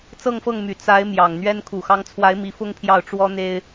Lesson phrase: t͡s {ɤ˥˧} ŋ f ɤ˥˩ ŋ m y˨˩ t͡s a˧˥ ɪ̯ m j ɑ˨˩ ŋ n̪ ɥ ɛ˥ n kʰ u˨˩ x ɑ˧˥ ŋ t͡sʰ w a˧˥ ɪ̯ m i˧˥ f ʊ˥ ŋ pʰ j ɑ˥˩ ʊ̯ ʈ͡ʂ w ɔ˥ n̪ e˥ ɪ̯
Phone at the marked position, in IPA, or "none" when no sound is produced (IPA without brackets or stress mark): ɤ˥˧